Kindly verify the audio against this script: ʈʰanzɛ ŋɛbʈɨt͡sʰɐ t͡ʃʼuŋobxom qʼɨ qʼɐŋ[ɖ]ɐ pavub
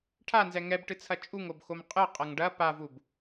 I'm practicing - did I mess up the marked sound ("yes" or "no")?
no